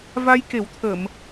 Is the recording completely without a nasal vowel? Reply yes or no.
yes